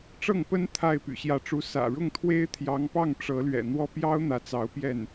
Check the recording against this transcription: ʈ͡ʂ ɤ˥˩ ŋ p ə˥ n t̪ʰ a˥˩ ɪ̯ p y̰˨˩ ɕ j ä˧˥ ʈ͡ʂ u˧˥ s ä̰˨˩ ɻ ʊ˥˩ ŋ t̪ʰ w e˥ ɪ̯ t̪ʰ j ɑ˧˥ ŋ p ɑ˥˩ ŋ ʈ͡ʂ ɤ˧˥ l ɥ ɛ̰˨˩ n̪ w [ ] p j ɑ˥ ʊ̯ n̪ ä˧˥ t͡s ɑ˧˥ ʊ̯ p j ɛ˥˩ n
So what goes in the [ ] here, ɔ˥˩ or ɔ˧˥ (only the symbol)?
ɔ˥˩